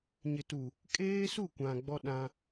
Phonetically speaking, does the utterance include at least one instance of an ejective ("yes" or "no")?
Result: yes